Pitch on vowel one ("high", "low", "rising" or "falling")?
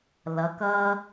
rising